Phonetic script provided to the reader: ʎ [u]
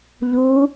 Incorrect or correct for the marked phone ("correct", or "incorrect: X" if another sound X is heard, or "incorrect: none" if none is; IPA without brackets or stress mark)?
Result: correct